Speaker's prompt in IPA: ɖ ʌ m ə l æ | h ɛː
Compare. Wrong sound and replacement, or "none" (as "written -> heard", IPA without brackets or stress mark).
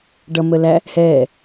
none